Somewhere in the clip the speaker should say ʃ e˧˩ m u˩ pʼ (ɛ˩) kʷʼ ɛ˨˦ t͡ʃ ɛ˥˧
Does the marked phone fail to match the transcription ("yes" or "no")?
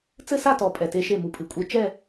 yes